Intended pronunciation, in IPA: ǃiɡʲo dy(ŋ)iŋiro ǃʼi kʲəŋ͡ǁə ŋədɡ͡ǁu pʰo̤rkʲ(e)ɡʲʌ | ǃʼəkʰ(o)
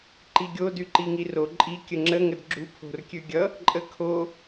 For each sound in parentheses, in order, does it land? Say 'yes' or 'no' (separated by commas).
no, no, yes